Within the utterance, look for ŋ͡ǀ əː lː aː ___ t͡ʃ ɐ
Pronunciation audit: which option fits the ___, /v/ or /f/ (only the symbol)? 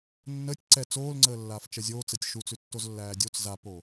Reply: f